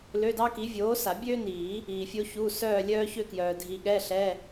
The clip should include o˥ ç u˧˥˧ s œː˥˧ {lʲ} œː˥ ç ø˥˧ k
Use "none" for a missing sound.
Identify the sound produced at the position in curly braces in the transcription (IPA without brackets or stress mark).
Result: lʲ